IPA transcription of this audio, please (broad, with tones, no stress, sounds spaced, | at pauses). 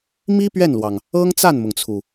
m i˥ p ɥ ɛ˥˩ n l w ɑ˩ ŋ | ɤ˥ ŋ t͡s a˥˩ n m ʊ˩ ŋ t͡sʰ u˩